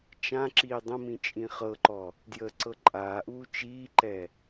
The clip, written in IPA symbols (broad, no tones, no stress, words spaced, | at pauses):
t͡ʃãǁiː dˤə̃mĩ t͡ʃʼĩχɤǃɔ | djəːǀɤǃʼaːʔuː t͡ʃiːǃɛ